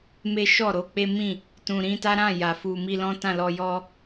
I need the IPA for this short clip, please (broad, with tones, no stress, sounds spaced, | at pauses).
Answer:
m e˦ ʃ ɔ˦˨ ɾ o˧ k͡p e˦ m ĩ˦˨ | t ũ˧ ɾ ĩ˦ t a˦ ɾ ã˦˨ j a˨ f u˧ m i˧ l ɔ̃˦ t ã˦˨ l ɔ˧ j ɔ˦